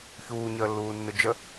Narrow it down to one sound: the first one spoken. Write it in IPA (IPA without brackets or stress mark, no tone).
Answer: ç